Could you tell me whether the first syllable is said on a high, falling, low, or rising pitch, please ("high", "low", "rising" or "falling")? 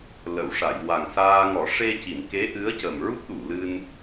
low